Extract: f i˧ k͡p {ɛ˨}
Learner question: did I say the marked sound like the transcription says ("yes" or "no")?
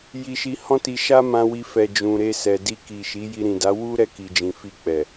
yes